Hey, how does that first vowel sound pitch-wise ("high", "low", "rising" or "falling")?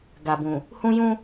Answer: low